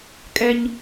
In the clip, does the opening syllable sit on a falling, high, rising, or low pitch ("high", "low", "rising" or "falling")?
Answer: high